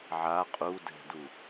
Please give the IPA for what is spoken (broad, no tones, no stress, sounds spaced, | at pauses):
ʕ a qʼ u d ɛ̤ d u